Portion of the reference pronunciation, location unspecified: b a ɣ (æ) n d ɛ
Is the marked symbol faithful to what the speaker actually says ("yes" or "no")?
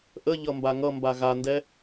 no